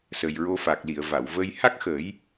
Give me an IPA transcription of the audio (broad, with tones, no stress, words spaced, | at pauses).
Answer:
sə˨˩jɹo˧fa˨˩k̚li˨˩˨ə̯ va˨˩˨wvə˧j ha˦˥k̚xəː˨˩˦j